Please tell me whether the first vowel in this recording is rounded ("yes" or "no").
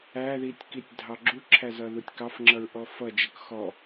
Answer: no